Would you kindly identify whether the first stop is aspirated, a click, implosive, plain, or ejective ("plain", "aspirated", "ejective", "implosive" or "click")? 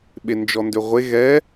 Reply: implosive